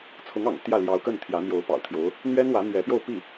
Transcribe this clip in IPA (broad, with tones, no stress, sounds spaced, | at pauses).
t͡sʰ ʊ˧˥ ŋ ɑ̰˨˩ ŋ t̪ j ä˥˩ l j ɑ˧˥ ʊ̯ k ə˥˩ n t̪ʰ j ä˧˥ n̪ j o˧˥ ʊ̯ p ɑ̰˨˩ ʊ̯ t̪ʰ j o˧˥ ʊ̯ | n̪ ɥ ɛ˥ n w ä˧˥ n̪ ɥ ɛ˧˥ p j o˥˧ ʊ̯ p i˥˩